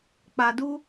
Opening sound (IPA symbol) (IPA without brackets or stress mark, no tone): k͡p